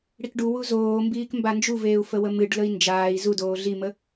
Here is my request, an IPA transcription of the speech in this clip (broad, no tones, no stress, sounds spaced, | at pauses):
ɽ i k ɖ u w u z oː m b iː k m b a n d͡ʒ u v eː u̯ f ə w ə m ɨ ɖ l ə i̯ n d͡ʒ aː i̯ z u d oː ɮ i m ə